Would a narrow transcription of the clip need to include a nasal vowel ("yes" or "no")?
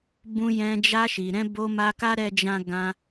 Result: yes